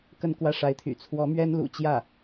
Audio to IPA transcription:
k ə˥˧ n k w ä˥˩ ʂ a˧˥ ɪ̯ t̪ʰ y̰˨˩ t͡sʰ w ɔ˧˥ m ɥ ɛ˥ n l ṵ˨˩ t͡ɕ j ä˥˩

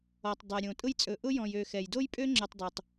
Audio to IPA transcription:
ɔ˩ tˤ dˤ ɛ˩ ɾʲ õ˩ tʼ ʊ˥ j t͡sʼ ɵ˨ ʔ ʊ˥ j ɔ̃˨ j ø˨ x ɛ˩ j d o˥ j pʼ ø˥ ŋ͡ǁ ø˨ tˤ dˤ o˩ tˤ

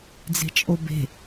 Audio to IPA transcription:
d͡z e̤ t͡ʃʼ o b e̤

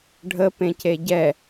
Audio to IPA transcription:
ɖʱ ə p ẽ c e ɟ ɛ

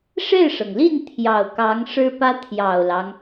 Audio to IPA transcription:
ʂ e˥˩ ɪ̯ ʂ ɤ˩ ŋ l i˥˩ n t̪ʰ j ɑ˨˩ ʊ̯ k ɑ˧˥ ŋ ʂ ɻ̩˥ p ä˥ t̪ʰ j ɑ˨˩ ʊ̯ l ɑ˦ ŋ

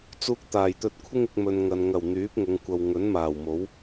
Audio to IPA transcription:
t͡s uː˧ k̚ t̪ aː˨˩ j t̪ ɵ˧ t̚ kʷʰ ɪ˥ ŋ ɪ˧ k̚ m ɵ˨ n ŋ ɐ˨ n ŋ ɐ˨˩ w n̪ yː˨˥ p̚ ŋ ʊ˨˧ ŋ kʷ ɐ˧ w ŋ ɵ˨˥ n m aː˨˩ w m o˨˥ w

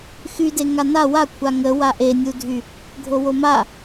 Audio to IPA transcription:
x y d e ŋ a n a w a kʷʰ a ŋ ə w a ʔ e nʲ u dʱ y | ɡʱ o w o m a

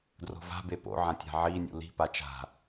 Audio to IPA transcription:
d r o̤ v a̤ b e p o̰ ʕ ã tʲ a̤ ʕ i nʲ ṵ l i̤ p a t͡ʃ a̤

